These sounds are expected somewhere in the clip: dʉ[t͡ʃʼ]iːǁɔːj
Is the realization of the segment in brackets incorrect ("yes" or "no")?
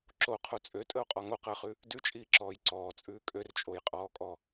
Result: no